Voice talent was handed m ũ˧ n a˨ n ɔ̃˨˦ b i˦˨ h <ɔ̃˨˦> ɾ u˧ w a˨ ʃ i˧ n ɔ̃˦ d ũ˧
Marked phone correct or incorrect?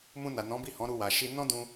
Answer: correct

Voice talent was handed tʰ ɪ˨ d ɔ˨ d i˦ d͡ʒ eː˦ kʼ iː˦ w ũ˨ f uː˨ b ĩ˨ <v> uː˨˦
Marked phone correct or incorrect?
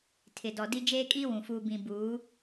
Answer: incorrect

